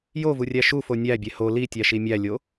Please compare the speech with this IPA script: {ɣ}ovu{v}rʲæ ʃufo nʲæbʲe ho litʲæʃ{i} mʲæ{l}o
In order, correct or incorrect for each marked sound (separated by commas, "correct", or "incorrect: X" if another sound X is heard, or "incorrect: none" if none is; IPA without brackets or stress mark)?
incorrect: j, incorrect: none, correct, incorrect: lʲ